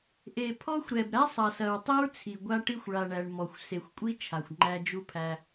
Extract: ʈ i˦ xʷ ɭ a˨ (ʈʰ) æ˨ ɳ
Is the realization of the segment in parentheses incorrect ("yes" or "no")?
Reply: yes